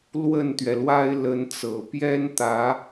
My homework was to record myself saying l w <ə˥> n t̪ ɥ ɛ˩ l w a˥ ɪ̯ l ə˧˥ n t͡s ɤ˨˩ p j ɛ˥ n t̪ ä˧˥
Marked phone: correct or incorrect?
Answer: incorrect